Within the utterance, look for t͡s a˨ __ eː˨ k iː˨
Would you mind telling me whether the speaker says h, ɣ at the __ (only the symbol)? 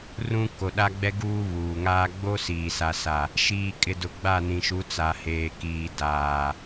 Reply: h